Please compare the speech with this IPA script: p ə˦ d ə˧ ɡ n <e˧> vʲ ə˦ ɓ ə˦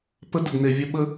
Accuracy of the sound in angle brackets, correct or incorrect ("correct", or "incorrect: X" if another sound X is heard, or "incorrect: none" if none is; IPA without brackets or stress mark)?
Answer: correct